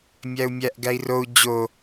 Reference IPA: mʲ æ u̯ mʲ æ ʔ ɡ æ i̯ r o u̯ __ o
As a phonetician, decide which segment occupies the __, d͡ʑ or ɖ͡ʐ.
d͡ʑ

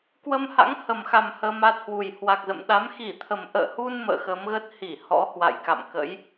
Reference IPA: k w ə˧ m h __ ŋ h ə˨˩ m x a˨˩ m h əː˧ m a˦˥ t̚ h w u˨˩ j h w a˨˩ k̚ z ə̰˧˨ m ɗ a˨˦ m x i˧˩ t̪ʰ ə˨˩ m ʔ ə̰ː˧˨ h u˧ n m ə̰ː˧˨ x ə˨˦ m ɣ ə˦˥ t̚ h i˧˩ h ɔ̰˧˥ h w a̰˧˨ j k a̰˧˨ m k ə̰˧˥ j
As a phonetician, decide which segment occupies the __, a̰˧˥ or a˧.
a̰˧˥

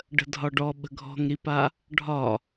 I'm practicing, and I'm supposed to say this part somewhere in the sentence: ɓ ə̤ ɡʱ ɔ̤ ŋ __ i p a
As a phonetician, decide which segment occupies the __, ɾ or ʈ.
ɾ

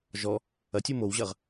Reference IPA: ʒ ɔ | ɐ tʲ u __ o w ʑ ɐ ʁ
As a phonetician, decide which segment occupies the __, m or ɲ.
m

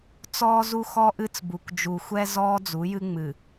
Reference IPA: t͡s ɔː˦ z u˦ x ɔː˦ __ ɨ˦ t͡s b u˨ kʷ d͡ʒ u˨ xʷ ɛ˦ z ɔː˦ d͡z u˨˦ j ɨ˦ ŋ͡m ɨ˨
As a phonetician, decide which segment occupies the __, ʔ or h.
ʔ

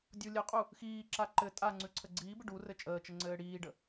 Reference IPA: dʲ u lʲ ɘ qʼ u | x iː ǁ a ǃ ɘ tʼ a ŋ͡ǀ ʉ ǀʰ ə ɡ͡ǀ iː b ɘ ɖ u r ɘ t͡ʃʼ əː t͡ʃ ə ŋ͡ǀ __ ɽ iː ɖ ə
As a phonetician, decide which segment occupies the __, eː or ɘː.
ɘː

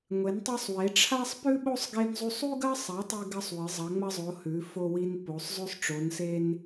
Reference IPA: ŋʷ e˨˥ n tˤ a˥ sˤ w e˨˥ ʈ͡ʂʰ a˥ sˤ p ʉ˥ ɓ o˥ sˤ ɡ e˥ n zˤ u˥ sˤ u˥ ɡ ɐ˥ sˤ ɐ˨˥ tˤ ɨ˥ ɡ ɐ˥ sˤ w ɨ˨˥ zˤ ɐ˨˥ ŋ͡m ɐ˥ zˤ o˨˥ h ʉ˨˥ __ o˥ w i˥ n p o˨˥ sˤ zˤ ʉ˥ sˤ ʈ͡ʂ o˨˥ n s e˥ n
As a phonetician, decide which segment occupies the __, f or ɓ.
f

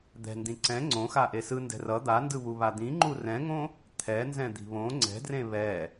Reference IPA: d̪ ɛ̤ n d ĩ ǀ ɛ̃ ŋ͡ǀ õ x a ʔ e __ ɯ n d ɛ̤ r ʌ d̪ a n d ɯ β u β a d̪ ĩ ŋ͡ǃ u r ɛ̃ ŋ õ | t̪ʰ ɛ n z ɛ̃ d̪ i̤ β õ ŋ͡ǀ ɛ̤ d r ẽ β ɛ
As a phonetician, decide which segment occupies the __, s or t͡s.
s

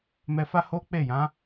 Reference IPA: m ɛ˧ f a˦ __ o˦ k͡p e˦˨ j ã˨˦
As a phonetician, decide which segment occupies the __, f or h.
h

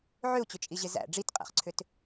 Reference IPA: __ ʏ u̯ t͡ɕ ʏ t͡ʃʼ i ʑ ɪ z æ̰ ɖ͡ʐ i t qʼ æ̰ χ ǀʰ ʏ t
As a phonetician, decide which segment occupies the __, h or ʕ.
ʕ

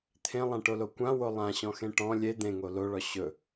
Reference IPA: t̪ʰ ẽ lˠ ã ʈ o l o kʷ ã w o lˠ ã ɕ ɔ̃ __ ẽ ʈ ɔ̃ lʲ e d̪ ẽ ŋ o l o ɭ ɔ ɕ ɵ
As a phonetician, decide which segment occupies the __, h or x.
x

